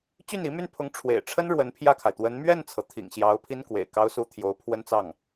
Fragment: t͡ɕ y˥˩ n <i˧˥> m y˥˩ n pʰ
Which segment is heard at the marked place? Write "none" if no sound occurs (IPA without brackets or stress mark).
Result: i˧˥